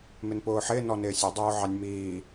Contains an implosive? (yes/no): no